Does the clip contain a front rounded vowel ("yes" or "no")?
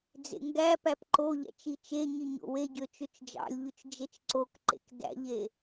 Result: yes